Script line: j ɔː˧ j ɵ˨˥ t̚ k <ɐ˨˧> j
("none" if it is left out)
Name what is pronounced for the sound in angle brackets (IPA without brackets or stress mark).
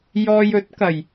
ɐ˨˩